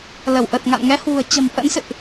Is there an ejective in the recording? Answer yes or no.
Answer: no